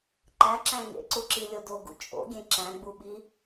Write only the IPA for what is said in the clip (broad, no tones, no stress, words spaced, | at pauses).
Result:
ǃæǁæ̃ ŋḛǀuǁilʲo doɡṵ t͡ʃʼo̰ɡʲẽ ǁæ̃ɡ͡buɓi